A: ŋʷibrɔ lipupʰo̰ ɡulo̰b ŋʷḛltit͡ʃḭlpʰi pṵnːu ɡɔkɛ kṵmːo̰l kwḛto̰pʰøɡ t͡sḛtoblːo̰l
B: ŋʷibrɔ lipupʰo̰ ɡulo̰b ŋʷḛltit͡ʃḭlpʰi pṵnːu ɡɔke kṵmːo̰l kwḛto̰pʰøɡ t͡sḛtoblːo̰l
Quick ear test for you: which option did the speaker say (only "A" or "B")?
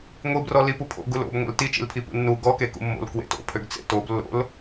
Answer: B